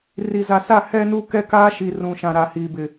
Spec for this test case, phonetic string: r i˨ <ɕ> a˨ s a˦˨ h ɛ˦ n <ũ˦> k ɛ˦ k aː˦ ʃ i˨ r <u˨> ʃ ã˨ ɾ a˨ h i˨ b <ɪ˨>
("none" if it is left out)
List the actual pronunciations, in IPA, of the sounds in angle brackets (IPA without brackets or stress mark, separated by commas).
z, u˦, ũ˨, ɪ˨